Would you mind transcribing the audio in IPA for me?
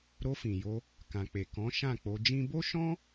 ɾ o˧ f ĩ˨ j o˧ | k ã˨ k͡p e˨ k ɔ̃˨˦ ʃ ã˦˨ k͡p o˧ d͡ʒ ĩ˦ b o˦ ʃ ɔ̃˦

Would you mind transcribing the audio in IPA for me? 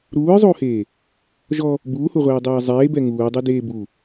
ɾ uː ɹ zˤ uː h eː | ʒ ɔ | b uː h u ʁʷ eː dˤ ɛː zˤ eː b ɛ ŋ uː dˤ ɛ d eː b u

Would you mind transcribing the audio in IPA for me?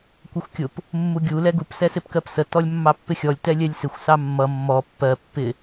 kʷ ə xʷ kʲ ʊ p | mː u ɡʲ u l ɛ ɡ u p s ɛ s ɪ p k ɜ p s ə t ɔ lʲ mː ɑ pː ɪ xʲ ɔ lʲ t ɛ lʲ ɛ lʲ s ɪ xʷ s ɑ mː ʌ mː ɔ pː ɜ pː ɪ

